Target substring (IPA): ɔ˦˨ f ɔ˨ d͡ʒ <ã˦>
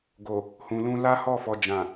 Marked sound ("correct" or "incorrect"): incorrect